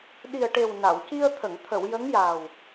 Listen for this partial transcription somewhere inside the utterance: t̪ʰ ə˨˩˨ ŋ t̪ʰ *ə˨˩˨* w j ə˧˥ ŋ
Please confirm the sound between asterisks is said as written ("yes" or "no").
yes